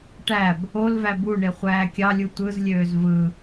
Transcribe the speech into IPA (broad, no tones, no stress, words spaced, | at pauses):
ʈæb | olvæ buɳe χʷæːkʲɑlʲu tʷɯzlʲøːz vɯ